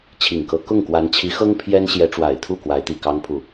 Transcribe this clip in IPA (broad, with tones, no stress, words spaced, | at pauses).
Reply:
t͡ɕʰi˨˩ŋkɤ˧˥ kʊ˥˩ŋ kwa˧˥nt͡ɕʰi˧˥xɤ˥ŋ pʰjɛ˥n ɕjɛ˧˥ʈ͡ʂwa˨˩ɪ̯t̪ʰu˥˩ kwa˧˥ɪ̯t̪i˨˩kɑ˥ŋpʰu˥˩